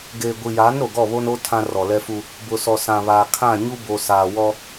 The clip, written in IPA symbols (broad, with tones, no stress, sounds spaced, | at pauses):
ɡ eː˨ ɡʷ i˨ j aː˨˦ n ɾ o˨ ɡ ɔ˦˨ β o˦ n o˦ tʰ ã˦ r ɔ˨ l ɛ˦ f u˦ | b ʊ˨ s ɔ˨ s ã˨ β aː˨ kʰ ã˦˨ ɲ u˦ b o˨ s aː˨ w ɔ˦